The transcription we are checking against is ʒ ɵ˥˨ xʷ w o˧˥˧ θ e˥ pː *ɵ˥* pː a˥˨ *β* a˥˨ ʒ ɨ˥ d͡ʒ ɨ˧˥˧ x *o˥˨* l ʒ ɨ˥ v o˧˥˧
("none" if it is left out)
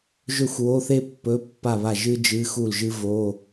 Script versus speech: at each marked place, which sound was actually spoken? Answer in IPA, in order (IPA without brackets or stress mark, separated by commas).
ɵ˧˥˧, β, u˥˨